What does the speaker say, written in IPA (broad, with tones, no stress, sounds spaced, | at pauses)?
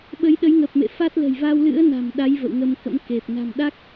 ɓ ə˨˦ j ɗ ə˨˦ j ŋ ə˨˩ p̚ m ḛ˧˨ f a˦˥ t̚ l ə̤˨˩ j v a˧ w l ɨ̰˧˥ ə̯ n a̤˨˩ m ɗ a˨˦ j v ə̰˧˨ w ŋ ə˧ m k ə̰˧˥ m k e˨˩ p̚ n a̤˨˩ m ɗ a˦˥ k̚